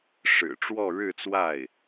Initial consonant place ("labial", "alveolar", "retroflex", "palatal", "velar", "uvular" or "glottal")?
retroflex